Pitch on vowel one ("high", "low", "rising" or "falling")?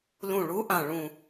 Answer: low